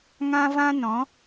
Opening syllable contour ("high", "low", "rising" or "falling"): high